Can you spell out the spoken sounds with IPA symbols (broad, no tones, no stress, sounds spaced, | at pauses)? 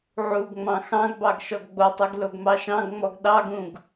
ʕ u ɡ ŋ͡m ɑ̃ x ɑ̃ ɡ b ɑ ɡ ʃ ɔ ɡ ɡ͡b o tˤ u ɡ l o ɡ m ɑ ʃ ɑ̃ ɡ ŋ͡m ɔ ɡ ɗ ɑ ɡ ũ ɡ